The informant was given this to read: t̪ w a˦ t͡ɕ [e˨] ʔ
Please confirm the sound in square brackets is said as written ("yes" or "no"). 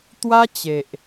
yes